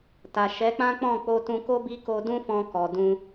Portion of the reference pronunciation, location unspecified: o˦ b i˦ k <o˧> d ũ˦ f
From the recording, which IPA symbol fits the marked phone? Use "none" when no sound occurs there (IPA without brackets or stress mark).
o˧